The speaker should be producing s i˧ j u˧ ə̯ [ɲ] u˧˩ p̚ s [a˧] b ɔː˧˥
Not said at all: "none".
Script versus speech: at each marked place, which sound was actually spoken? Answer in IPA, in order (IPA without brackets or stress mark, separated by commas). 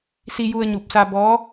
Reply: ɲ, a˧